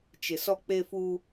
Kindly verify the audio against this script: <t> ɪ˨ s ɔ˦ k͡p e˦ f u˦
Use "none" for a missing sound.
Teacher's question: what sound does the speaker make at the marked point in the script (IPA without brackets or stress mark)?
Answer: t͡ʃ